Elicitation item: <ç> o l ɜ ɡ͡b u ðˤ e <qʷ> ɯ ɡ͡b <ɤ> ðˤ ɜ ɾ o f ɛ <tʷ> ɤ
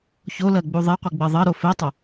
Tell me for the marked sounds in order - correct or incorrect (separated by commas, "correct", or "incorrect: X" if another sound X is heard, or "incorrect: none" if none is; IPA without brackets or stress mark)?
correct, correct, correct, incorrect: tˤ